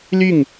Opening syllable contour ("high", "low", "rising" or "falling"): falling